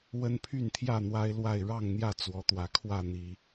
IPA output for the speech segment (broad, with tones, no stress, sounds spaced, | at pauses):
w ə˦ n pʰ y˥˨ n t̪ʰ j ä˥˨ n̪ w a˦ ɪ̯ l w a˥˨ ɪ̯ ɻ ɑ˥˨ ŋ n̪ j ä˥˨ t͡s w ɔ˨˦ t̪ w ä˨˦ kʰ w ä˥˨ n̪ i˨˦